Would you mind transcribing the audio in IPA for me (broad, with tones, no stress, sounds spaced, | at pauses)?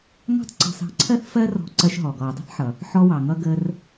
ŋ ɑ̤˥ tˤ ǀ ɔ̤˧ s ɑ̤˧ ǀʰ ɜ˥ θ f ɜ˥ r ɔ̤˧ ǀ ɜ˧ ʃ ɦ ɔ˩ ɡ ɔ˩ u̯ dˤ ə̤˥ θ ħ ʌ˩ | ħ ɔ˧ w ɑ˩ ŋ ʌ˧ ɡ ə˧ r